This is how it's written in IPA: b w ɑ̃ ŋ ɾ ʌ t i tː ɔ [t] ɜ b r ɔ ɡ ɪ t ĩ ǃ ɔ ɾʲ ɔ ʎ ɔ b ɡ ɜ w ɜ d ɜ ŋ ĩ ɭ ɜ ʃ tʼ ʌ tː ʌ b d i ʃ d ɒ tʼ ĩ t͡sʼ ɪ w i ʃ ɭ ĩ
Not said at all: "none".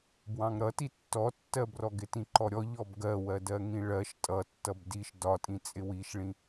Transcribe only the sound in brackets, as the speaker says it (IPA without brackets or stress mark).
tː